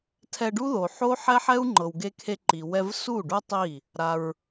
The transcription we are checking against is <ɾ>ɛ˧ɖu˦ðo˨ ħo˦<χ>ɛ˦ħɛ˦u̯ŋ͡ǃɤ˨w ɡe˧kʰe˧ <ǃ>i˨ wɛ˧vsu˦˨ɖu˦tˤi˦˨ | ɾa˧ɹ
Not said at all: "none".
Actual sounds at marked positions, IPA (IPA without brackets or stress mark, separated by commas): tʰ, ħ, ǃ